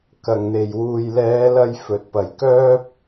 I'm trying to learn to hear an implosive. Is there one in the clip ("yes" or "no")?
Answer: no